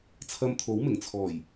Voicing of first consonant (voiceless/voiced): voiceless